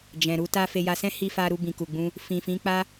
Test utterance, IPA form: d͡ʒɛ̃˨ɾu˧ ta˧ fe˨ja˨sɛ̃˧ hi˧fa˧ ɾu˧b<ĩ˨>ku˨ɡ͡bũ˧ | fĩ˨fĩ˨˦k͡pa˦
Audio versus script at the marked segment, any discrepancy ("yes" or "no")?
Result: no